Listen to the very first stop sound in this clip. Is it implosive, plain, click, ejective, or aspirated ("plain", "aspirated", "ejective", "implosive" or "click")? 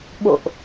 implosive